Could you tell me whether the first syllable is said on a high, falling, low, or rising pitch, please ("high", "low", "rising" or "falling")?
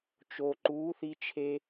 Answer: low